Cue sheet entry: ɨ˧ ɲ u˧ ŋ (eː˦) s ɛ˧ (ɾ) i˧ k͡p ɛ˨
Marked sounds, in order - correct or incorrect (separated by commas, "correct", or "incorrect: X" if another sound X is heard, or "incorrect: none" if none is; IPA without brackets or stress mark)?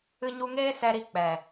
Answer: correct, correct